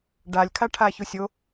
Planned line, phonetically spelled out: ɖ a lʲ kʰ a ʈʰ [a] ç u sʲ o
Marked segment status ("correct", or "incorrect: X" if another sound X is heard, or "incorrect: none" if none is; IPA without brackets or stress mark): correct